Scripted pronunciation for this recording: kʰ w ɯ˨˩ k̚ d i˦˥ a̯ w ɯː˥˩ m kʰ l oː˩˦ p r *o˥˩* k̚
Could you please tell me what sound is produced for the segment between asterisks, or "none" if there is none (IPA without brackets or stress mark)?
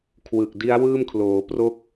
o˥˩